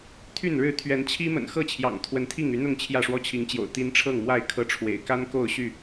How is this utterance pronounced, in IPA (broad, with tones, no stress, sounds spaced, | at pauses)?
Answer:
t̪ʰ y˥˨ n ɻ ɻ̩˥˨ t̪ʰ ɥ ɛ˨˦ n t͡ɕʰ i˦ m ə̰˨˩ n x ɤ˥˨ t͡ɕʰ j ɑ̰˨˩ ŋ t̪ʰ w ə˨˦ n t̪ʰ i˥˨ ŋ y˨˦ n̪ ʊ˥˨ ŋ t͡ɕʰ j ä˥˨ ʂ w ɔ˦ t͡ɕʰ i˨˦ ŋ t͡ɕ j o̰˨˩ ʊ̯ t̪ i˨˦ n ʈ͡ʂʰ ɤ˥˨ ŋ m w a˥˨ ɪ̯ kʰ ɤ˦ ʈ͡ʂʰ w ḛ˨˩ ɪ̯ k a˦ n k o˥˨ ʊ̯ ɕ y˥˨